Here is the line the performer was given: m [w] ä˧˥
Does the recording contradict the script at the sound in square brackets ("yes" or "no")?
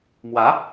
no